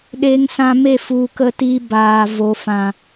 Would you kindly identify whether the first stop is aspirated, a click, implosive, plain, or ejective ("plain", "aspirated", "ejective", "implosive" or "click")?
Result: implosive